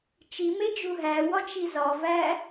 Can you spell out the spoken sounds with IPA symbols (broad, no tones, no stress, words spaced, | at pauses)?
t͡ʃimed͡ʒu ɦæwɒt͡ʃi zɒvæ